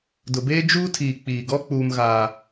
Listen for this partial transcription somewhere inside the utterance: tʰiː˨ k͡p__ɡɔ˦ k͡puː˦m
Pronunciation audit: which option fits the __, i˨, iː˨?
iː˨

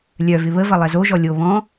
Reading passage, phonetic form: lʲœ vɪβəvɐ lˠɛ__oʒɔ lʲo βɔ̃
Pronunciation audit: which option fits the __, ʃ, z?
z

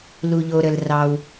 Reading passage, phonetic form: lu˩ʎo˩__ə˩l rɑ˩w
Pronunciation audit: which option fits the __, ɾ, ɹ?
ɾ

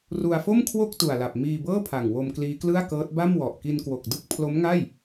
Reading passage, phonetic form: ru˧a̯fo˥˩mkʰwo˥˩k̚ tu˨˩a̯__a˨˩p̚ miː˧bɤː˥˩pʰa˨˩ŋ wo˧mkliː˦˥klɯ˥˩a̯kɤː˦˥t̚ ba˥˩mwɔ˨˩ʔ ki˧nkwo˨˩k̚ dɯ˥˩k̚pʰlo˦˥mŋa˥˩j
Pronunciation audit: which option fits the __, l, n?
l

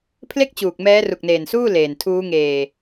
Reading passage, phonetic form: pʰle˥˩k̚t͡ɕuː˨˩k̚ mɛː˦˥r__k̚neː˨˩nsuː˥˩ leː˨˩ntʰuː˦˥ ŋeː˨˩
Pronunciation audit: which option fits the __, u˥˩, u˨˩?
u˨˩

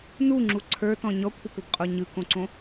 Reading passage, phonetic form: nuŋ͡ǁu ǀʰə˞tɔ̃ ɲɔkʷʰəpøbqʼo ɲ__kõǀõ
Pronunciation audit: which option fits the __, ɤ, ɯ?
ɯ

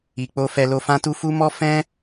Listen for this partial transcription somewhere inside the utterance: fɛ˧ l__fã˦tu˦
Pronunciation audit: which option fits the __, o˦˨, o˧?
o˧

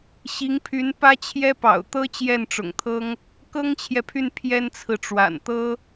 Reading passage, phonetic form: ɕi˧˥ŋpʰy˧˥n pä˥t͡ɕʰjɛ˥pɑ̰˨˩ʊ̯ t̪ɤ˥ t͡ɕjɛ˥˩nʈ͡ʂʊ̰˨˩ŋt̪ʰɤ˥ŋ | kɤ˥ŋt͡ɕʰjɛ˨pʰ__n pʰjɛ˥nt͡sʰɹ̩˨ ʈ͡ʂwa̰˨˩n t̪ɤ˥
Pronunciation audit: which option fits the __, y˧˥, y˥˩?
y˥˩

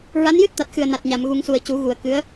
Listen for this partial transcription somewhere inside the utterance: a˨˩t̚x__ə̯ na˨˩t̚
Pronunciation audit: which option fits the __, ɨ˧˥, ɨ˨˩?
ɨ˨˩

